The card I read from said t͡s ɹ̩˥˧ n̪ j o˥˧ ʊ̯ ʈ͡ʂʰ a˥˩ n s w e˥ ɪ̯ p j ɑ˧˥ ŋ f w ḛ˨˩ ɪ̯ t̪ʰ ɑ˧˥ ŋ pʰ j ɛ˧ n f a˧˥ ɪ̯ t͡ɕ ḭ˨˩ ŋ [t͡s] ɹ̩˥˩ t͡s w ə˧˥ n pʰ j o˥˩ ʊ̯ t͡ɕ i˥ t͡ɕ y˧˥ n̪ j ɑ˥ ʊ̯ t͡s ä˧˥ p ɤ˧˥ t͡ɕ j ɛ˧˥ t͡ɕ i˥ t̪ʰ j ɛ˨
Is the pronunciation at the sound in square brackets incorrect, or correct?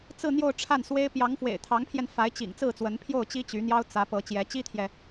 correct